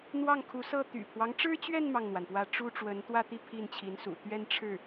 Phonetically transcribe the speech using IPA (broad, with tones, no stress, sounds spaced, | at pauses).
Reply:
n̪ w ɑ˥˩ ŋ kʰ u˧˥ s ɤ˥˩ t̪ y̰˨˩ pʰ w ɑ˦ ŋ ʈ͡ʂ ɻ̩˥ t͡ɕ ɥ ɛ˥˧ n m ɑ˥˩ ŋ n̪ w a˩ n p w ä˥˩ ʈ͡ʂ u˥ ʈ͡ʂ w ə˧˥ n t̪ w ä˥˧ t̪ i˥˧ pʰ i˥˩ n t͡ɕʰ i˧˥ n s ṵ˨˩ t̪ ɥ ɛ˥˧ n ʈ͡ʂʰ ɻ̩˥˩